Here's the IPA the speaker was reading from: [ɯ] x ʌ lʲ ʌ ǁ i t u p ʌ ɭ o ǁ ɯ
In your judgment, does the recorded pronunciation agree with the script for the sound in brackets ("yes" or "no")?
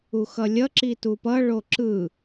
no